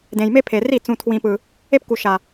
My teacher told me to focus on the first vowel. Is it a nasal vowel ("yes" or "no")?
yes